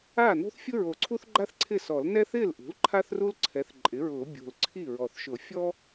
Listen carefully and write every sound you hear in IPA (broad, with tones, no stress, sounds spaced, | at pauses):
aː˥˩ n o̤˥ θ fʲ ʊ˥ ɹ o˨˩ ǀʰ u˥ θ ɡ͡ǃ a˥ θ ǀʰ ɪ˥˩ s ɔ˨˩˦ l n ɛ˥ θ ɪː˥˩ l ʔ ṳ˩˥ l ǃʰ a˥ θ r u˥ l ǀʰ ɛ˩˥ θ ǃʼ ɪ˩˥ ɹ ʊː˨˩˦ bʲ o̤˨˩ l ǀʰ i˥˩ ɹ ɔ˨˩ θ ʃ ʊ˨˩˦ fʲ ɔ˥